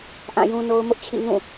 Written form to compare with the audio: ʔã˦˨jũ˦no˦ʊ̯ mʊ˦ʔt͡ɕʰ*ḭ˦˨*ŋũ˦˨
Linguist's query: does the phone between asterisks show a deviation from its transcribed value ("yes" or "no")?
no